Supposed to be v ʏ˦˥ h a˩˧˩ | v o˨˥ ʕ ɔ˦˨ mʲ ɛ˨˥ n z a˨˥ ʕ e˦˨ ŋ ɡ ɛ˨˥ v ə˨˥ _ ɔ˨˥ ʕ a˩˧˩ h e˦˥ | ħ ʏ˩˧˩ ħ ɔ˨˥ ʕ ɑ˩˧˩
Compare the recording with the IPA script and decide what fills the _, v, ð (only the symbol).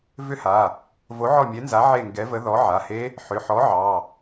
ð